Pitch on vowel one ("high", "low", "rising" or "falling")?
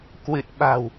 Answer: low